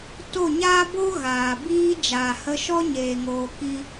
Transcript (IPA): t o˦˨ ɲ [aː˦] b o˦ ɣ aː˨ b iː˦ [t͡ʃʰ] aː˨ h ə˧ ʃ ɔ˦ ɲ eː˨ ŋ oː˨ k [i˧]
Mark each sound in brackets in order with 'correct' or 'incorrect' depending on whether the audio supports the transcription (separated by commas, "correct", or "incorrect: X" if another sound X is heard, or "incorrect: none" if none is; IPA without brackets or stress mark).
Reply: correct, incorrect: d͡ʒ, correct